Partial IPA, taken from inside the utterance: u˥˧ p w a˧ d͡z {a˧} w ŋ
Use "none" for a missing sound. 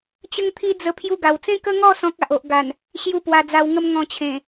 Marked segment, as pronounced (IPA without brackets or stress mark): a˧